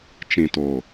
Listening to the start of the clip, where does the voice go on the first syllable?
low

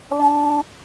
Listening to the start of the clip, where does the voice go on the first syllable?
high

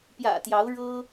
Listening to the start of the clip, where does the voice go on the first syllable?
low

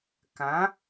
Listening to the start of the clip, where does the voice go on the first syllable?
rising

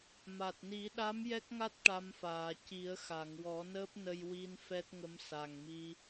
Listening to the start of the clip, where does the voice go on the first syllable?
low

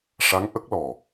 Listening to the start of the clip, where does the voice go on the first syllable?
rising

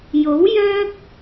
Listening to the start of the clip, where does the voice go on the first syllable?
rising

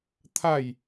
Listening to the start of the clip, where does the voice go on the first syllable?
falling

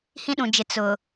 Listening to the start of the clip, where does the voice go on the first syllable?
high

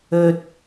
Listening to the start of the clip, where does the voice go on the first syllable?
high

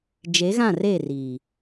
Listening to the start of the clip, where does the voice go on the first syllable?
rising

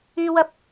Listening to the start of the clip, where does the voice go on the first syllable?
high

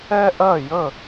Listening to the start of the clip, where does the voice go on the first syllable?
high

